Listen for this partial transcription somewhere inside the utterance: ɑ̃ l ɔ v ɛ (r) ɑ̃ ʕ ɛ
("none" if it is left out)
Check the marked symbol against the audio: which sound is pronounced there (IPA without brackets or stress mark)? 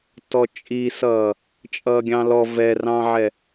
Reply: r